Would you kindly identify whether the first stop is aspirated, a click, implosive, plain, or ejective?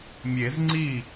click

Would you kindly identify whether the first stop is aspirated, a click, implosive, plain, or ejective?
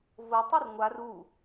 plain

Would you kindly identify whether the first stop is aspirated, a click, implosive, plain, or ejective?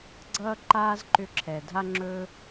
click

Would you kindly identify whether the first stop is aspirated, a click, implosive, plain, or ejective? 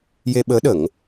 implosive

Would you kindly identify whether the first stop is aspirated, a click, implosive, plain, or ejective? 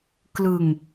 plain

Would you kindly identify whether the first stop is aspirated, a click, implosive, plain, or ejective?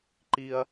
click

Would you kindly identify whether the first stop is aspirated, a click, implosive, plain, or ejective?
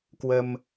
plain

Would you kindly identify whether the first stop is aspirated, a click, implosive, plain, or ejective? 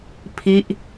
aspirated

